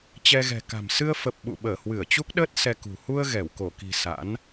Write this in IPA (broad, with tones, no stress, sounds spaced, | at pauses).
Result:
t͡ɕ ɛ˧ ɣ ɛ̤˨˩ k a̤˨˩ m s ɨ˧ ə̯ f ə˨˩ p̚ ɓ ṵ˧˨ ɓ əː˧˩ h w ɨ˧˩ ə̯ t͡ɕ u˦˥ k̚ ɗ əː˦˥ t̚ s ɛ˧ k ṳ˨˩ h u˧ ə̯ ɣ ɛ˧˩ w k o˧˩ k i̤˨˩ s a̰˧˥ n